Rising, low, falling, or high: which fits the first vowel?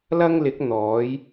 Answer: high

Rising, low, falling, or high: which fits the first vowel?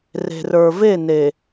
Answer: low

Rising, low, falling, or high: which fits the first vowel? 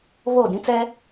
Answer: falling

